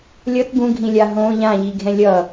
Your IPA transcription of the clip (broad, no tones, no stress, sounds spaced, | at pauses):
lʲ ʌ t ɡ ũ ɡʱ ĩ lʲ a ɦ õ ʎ ã ʎ i ɡʱ ɛ̃ lʲ ʌ